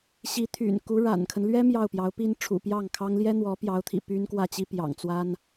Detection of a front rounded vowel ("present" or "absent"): present